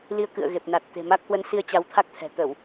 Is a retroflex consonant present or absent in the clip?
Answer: absent